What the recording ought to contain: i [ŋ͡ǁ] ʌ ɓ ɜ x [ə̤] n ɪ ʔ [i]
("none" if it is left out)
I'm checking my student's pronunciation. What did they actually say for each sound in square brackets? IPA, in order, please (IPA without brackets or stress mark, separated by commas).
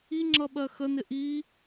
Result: ŋ͡ǁ, ə, i